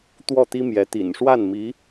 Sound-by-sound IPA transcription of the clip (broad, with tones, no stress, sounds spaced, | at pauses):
t̪ w ɔ˥˩ t̪ i˥ m j ɛ˧˥ t̪ ḭ˨˩ n ʂ w a˥˩ n m i˧˥